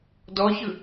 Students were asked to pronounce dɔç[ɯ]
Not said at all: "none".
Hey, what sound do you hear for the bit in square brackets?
ɯ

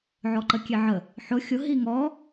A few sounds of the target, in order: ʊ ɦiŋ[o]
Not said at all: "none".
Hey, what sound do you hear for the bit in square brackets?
ɔ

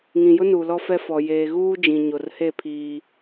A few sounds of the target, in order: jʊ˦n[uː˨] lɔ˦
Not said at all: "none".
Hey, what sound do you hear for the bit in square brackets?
uː˨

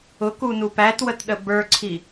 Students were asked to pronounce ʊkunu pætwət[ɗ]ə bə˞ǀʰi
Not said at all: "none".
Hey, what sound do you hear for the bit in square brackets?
ɗ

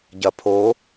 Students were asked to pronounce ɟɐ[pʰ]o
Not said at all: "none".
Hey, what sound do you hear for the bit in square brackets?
pʰ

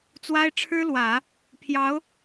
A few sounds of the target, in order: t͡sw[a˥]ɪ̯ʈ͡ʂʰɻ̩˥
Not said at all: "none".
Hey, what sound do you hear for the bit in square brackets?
a˥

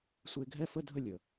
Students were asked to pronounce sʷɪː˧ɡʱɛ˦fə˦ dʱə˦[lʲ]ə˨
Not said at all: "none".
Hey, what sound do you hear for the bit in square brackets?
lʲ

